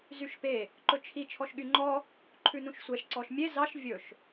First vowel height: high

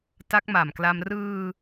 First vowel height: low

